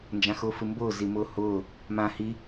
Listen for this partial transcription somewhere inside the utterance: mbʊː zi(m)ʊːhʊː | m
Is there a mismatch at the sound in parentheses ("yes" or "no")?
no